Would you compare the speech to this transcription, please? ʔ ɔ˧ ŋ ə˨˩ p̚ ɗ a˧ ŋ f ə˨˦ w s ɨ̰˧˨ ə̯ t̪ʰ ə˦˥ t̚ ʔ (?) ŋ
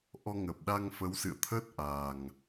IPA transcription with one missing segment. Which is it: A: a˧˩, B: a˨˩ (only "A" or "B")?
B